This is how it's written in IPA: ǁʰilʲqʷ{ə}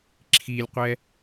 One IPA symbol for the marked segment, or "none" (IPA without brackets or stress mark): ɛ